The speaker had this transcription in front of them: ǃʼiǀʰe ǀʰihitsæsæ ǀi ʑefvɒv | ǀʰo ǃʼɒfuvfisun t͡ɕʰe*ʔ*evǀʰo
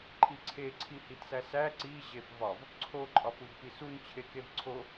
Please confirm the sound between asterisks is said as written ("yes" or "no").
no